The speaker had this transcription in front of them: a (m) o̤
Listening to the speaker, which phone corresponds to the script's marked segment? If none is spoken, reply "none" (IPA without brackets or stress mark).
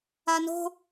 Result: n